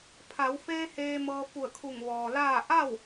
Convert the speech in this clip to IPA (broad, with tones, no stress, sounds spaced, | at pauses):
pʰ a˩˧ w f eː˧ h eː˧ m ɤː˧ f u˧˩ ə̯ kʰ u˧˩ ŋ ʋ ɔː˩ l aː˥˨ ʔ a˥˨ w